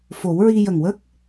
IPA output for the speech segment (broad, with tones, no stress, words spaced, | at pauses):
fo˨˩˦wɹi˧ jə˨˩ŋwə˦˥k̚